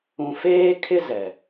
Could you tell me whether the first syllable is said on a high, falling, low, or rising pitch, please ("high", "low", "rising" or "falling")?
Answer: low